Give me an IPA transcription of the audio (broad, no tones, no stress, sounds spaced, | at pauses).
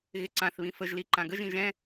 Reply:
ɣ ɪ ǀ ã θ β ĩ f ə ʒ l i ǃ ã ɡ ə ʒ ĩ ʒ ɛ̃